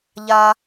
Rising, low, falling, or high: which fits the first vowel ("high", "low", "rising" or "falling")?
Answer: high